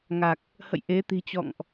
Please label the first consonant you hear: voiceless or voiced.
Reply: voiced